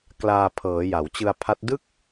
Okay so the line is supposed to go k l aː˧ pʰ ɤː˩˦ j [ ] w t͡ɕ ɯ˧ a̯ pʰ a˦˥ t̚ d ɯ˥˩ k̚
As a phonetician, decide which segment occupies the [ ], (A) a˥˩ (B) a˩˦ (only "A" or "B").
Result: B